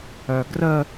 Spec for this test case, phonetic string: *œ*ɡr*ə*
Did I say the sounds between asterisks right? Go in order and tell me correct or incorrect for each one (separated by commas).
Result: correct, correct